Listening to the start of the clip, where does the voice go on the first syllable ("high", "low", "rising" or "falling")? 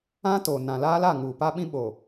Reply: high